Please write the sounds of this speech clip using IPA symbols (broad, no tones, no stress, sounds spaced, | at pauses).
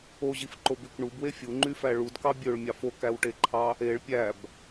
o ʑ i f ǃ o b y k ɳ u b w e fʲ u ŋ͡ǃ y f æ ɭ u d k ɑ bʲ ø ɭ mʲ ɑ f o k æ w ʈ e ǃʰ ɑ | e ɭ pʲ æ b